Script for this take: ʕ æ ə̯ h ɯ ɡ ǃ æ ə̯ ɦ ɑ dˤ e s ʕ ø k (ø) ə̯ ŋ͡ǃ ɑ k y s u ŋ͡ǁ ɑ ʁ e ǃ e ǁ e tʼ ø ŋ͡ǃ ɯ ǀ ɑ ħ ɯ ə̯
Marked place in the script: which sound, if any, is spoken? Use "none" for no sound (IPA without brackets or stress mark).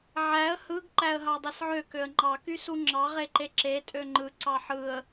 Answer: ø